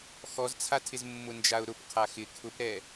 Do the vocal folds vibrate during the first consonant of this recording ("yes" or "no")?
no